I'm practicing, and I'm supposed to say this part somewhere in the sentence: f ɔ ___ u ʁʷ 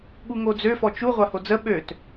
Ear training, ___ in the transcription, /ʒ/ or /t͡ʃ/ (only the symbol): t͡ʃ